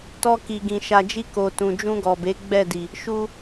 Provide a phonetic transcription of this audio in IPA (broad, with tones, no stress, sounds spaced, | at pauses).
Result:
t ɔ˧ k i˨ ɡ ĩ˨ ʃ a˨ d͡ʒ i˧ k o˨ t ũ˨ d͡ʒ ũ˧ ɡ ɔ˨ b e˨˦ ɡ͡b ɛ˦˨ d i˨ | ʃ u˧